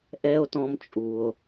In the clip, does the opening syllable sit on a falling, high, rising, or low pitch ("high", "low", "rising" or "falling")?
high